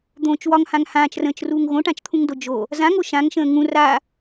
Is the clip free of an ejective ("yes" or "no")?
yes